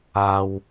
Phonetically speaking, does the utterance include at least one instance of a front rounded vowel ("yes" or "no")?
no